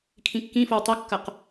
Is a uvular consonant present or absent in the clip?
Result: present